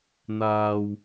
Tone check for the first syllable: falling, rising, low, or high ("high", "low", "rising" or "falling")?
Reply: low